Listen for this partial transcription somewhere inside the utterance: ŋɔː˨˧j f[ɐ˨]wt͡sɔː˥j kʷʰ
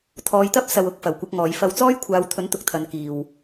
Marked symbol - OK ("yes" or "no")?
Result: no